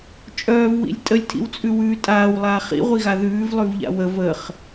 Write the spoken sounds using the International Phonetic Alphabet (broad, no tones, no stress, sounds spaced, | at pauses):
t͡ʃʼ œː v w ḭ lʲ tʼ ə lʲ tʰ ḭ w t͡sʼ ʉ w ʉː tʼ aː w lˠ aː χ ḭ ʁʷ i ɣ a ð ʉː v lˠ ʉ v ʎ a̰ w ə v ə χ